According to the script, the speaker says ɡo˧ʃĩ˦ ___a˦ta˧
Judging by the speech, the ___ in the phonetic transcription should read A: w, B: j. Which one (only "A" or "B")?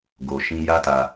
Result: B